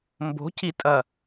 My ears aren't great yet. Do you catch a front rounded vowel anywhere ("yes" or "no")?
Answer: no